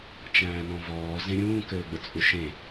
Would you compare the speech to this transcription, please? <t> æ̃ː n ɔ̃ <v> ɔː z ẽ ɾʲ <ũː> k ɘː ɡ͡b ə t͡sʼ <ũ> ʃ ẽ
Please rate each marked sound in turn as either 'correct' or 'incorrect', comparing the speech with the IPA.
incorrect: t͡ʃ, correct, correct, incorrect: u

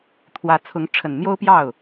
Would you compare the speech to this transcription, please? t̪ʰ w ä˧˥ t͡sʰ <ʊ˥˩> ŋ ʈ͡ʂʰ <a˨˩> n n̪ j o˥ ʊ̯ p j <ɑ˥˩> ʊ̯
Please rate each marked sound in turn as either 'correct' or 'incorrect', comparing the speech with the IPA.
incorrect: ʊ˧˥, incorrect: ə˨˩, correct

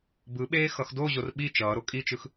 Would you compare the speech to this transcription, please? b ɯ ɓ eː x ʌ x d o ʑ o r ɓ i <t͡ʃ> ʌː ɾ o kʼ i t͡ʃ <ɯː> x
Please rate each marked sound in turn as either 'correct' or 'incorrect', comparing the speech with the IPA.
correct, incorrect: ɯ

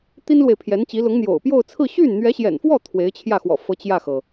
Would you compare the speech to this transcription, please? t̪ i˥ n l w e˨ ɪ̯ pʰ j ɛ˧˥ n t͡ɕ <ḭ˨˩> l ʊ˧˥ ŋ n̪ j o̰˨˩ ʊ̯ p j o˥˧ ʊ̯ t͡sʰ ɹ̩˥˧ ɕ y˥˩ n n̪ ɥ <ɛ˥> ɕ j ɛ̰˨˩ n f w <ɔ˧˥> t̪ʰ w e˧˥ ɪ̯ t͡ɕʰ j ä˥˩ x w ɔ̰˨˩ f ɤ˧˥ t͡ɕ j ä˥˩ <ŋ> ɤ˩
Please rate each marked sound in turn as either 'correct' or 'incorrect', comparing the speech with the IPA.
incorrect: i˧˥, incorrect: ɛ˧˥, incorrect: ɔ˥˩, incorrect: x

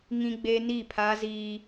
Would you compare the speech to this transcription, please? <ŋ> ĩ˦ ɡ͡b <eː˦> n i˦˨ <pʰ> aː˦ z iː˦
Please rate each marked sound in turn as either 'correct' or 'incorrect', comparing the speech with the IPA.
correct, correct, correct

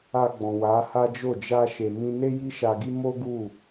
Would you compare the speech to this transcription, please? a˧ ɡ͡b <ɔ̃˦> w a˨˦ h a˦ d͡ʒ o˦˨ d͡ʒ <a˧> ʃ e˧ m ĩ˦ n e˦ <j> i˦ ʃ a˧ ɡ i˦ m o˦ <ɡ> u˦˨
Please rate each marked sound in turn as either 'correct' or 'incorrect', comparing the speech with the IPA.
incorrect: ɔ̃˨, correct, correct, correct

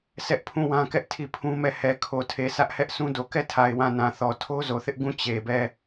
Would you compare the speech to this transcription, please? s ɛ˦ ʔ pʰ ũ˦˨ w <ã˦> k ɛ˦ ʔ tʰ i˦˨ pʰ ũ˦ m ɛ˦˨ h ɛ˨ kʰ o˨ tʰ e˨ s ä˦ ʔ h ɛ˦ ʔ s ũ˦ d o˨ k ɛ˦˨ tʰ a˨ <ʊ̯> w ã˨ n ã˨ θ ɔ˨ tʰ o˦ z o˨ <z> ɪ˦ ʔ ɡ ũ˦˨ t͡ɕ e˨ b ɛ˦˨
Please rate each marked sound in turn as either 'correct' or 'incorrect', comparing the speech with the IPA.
correct, incorrect: ɪ̯, incorrect: θ

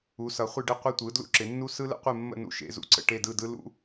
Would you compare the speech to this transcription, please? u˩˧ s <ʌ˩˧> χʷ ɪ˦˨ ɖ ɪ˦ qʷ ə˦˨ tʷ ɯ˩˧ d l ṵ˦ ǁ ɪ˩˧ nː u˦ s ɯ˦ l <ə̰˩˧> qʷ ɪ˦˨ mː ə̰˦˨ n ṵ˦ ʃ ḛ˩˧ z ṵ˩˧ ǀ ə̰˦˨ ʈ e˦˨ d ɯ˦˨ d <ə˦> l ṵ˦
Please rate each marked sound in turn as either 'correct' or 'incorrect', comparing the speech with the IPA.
correct, incorrect: ə̰˦, incorrect: ɯ˦

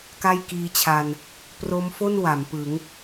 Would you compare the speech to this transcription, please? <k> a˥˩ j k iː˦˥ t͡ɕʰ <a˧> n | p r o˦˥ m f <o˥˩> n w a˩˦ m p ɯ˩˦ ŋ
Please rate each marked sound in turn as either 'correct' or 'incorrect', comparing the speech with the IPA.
correct, correct, correct

